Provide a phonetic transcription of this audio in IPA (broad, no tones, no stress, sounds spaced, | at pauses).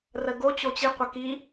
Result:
r ə ɡ o t͡ɕ o t͡ɕ i qʷ ə k i